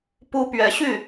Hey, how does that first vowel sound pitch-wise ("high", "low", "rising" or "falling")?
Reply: high